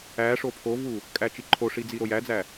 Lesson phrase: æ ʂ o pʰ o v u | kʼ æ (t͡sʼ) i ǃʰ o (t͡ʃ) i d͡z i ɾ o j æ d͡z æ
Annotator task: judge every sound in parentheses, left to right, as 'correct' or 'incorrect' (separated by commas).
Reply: incorrect, incorrect